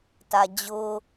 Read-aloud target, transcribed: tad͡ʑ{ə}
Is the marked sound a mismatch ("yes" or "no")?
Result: yes